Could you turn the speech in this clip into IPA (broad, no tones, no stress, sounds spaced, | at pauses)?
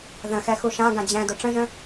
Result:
ð ə̃ x ɛ x u ʃ ã ɡ ã d͡ʑ ɛ̃ d ʊ ʈ͡ʂ ə̃ ʒ ə̃